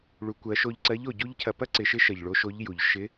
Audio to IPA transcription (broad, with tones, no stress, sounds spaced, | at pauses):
ɭ u˩˧ kʷ ɜ˩˧ ʃ o˧ ʎ ǀ ɜ˧˥ ʎ o˩ ɟ u˥ ʎ cʰ ɐ˧ p ɐ˥ ǀ ɪ˩˧ ʃ ɪ˧˥ ʃ ɜ˩ ʎ ɭ o˧˥ ʃ o˧˥ ʎ j u˩ ʎ ʃ ɪ˧˥